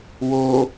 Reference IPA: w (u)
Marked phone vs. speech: incorrect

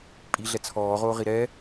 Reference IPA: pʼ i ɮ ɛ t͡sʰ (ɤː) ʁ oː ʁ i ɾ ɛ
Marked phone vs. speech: incorrect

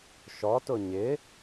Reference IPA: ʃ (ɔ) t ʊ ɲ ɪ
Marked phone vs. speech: correct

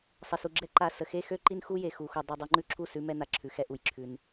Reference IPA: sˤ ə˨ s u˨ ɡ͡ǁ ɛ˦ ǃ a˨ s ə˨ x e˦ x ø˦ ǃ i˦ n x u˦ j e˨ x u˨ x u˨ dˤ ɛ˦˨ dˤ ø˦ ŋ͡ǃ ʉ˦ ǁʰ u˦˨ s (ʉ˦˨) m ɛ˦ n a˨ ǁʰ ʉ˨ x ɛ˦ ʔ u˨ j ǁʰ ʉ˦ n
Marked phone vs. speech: incorrect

